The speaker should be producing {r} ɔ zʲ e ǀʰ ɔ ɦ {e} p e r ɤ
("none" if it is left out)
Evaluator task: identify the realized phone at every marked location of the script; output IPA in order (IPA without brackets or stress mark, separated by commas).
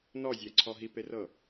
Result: n, i